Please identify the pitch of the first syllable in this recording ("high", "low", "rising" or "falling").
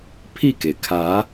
falling